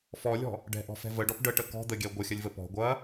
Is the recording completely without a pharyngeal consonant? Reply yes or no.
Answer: yes